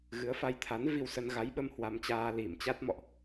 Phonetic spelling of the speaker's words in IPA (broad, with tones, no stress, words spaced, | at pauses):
ɣɨ˨˦ə̯fa˧jt̪ʰa˨˦n vi˧wsə˧n ɣa˨˦jɓə˧m hwa˧mt͡ɕaː˧ li˧˩m t͡ɕa˦˥t̚mɔ̰˧˨ʔ